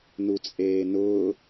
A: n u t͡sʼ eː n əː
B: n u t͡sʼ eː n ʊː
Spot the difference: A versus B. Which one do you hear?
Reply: B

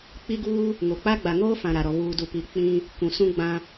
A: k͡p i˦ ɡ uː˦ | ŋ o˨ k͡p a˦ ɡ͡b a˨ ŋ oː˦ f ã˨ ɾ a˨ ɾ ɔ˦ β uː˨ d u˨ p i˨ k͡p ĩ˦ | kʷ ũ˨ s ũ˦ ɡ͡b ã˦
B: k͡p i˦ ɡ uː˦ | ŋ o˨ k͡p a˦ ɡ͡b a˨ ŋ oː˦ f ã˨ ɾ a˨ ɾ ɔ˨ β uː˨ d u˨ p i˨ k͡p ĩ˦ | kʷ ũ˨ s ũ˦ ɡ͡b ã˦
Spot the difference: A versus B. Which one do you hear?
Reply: B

